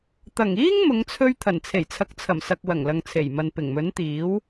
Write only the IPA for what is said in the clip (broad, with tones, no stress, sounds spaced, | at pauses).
t̪ ɐ˨˩ ŋ iː˥ ŋ m ʊ˨˧ ŋ t͡sʰ ɵ˧ ɥ t̪ʰ ɐ˨˩ n t͡sʰ e˨˩ j t͡sʰ ɐ˨˥ k̚ t͡sʰ ɐ˨˩ m s ɐ˨ k̚ w ɐ˨˩ ŋ l ɐ˨ ŋ t͡sʰ e˨˩ j m ɐ˨ n p ɪ˨˩ ŋ m ɵ˨˥ n t̪ iː˨˥ w